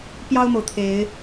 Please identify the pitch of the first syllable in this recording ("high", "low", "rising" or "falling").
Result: high